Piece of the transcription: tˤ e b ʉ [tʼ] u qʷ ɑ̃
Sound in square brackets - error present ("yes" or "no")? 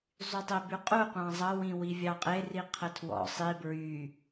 yes